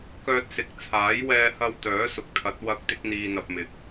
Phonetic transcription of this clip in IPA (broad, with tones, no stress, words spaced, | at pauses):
kœː˧t̚sɪ˨˥k̚t͡sʰaː˨˥j wɛː˧hɐ˧w t̪œː˨˥sʊ˨k̚t̪ʰɐ˨˥t̚ wɐ˧k̚ t̪ɪ˥k̚n̪iː˧n̪ɐ˧p̚mɪ˧k̚